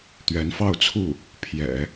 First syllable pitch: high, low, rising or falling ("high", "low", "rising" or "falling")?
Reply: rising